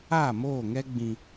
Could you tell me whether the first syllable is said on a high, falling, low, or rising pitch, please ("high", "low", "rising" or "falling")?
falling